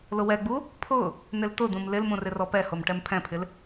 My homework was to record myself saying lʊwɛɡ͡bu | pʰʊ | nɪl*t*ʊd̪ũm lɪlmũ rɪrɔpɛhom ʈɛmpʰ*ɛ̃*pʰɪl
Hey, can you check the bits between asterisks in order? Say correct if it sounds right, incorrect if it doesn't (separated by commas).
correct, correct